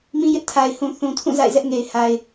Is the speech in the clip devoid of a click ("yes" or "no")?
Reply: yes